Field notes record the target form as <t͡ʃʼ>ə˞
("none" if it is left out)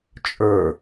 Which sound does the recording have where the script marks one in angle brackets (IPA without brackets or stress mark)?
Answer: t͡ʃʼ